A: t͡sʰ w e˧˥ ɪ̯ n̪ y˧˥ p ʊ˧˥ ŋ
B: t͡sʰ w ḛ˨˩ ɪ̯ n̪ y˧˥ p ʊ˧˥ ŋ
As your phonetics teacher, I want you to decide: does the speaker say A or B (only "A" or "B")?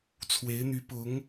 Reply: A